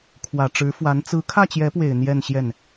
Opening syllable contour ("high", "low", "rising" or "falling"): low